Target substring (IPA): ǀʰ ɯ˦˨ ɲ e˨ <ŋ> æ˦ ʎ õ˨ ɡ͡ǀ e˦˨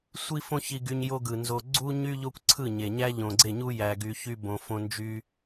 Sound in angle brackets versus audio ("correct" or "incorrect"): incorrect